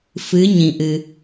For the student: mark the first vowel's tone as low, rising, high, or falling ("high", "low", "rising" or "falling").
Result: rising